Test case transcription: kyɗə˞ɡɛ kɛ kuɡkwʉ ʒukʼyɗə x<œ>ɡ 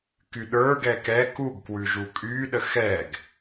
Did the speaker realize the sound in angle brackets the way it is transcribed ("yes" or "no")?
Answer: no